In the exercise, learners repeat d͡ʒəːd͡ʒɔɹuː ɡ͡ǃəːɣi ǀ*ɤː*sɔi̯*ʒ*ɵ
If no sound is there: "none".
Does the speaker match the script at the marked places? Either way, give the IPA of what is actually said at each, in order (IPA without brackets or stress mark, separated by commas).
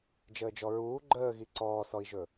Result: ɔː, ʒ